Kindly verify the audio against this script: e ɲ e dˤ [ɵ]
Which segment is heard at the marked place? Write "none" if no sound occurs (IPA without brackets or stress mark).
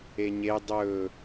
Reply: ɵ